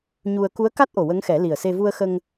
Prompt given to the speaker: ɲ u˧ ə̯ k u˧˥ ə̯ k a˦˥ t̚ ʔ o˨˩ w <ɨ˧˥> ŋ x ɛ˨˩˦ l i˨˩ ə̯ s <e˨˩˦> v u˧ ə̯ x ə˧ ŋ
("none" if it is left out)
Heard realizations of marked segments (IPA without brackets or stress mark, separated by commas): ə˧˥, e˧